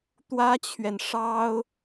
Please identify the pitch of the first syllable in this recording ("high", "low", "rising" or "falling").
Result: high